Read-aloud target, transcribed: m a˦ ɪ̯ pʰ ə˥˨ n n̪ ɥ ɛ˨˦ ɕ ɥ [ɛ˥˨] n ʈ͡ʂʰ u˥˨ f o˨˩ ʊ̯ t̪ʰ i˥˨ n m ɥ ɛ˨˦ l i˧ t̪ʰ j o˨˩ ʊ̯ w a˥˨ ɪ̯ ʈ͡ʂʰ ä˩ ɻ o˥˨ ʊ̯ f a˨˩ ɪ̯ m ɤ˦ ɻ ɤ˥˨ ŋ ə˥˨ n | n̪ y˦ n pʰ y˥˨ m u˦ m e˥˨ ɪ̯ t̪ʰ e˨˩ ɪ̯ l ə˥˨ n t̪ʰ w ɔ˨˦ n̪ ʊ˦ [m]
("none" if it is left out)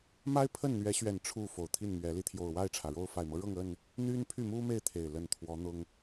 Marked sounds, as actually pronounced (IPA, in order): ɛ˨˩, ŋ

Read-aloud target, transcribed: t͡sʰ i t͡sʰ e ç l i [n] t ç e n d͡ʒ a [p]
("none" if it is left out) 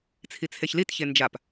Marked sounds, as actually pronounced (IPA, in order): none, p

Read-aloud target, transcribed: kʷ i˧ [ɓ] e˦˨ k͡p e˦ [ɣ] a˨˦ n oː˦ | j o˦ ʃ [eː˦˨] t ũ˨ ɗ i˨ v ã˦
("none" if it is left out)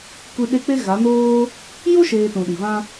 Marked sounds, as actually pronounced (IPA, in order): ɗ, ɣ, eː˧

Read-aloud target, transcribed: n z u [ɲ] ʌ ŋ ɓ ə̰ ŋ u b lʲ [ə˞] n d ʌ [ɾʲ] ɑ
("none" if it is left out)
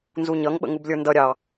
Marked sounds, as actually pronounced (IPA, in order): ɲ, ə˞, ɾʲ

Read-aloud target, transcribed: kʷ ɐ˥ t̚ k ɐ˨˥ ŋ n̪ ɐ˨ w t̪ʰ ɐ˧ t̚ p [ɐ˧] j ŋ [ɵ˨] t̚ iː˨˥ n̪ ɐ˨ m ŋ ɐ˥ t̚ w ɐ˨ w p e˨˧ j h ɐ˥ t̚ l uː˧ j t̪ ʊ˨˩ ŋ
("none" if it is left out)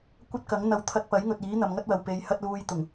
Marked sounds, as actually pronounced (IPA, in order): ɐ˨˥, ɵ˨

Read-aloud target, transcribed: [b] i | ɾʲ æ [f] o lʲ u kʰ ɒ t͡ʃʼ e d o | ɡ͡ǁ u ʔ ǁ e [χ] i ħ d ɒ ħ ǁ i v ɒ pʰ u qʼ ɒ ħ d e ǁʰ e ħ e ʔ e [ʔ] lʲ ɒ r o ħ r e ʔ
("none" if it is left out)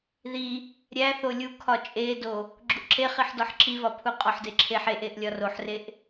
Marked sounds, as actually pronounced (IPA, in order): ð, θ, χ, ʔ

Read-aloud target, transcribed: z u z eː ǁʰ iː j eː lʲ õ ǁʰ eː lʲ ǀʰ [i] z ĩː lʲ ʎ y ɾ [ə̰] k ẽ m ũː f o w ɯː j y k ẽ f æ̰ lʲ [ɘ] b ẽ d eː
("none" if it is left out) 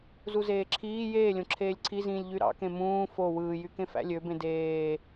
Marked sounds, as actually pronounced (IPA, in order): i, ɑ̰, ø

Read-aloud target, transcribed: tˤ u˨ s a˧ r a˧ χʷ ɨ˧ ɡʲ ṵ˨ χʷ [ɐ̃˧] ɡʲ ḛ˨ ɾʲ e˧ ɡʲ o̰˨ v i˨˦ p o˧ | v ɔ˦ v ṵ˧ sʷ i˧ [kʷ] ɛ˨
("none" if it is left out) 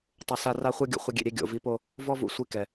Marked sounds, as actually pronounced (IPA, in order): ɐ˧, k

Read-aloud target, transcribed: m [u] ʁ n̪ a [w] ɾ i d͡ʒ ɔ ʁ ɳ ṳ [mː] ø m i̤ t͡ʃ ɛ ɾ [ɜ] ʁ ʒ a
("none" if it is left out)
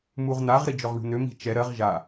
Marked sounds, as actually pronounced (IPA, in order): u, ʁ, n̪, ɜ

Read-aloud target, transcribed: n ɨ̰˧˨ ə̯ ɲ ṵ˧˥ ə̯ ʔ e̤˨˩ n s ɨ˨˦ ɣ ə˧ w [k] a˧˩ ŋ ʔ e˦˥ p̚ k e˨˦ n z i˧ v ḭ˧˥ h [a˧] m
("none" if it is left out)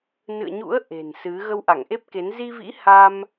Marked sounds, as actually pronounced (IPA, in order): ʔ, a˧

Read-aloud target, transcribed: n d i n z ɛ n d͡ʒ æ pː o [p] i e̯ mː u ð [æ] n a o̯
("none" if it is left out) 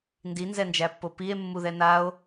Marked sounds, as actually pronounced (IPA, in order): p, ɛ

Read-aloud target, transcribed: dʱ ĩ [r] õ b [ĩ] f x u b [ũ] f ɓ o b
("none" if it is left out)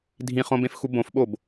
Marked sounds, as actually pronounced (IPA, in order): χ, ẽ, õ

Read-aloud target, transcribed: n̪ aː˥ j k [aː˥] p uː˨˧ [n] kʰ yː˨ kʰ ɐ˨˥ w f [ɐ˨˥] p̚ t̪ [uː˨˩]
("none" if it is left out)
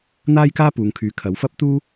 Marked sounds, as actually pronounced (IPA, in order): aː˥, ŋ, ɐ˥, uː˥

